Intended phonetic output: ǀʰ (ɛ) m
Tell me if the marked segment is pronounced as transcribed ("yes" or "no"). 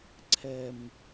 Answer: yes